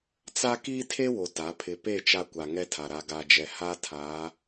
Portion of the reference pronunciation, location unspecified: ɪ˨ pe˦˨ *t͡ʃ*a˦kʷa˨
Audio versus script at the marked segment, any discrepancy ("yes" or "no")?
no